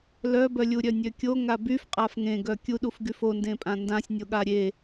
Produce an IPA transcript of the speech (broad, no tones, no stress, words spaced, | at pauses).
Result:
lœbœlʲuɾʲœ nʲøkʲo ŋabyf qʼafŋẽɡœ kʲuɗufɡyf ondẽpʼã ndãsʲnʲoɠa ɾʲe